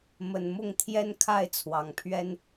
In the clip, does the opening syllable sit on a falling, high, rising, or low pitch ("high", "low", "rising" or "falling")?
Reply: low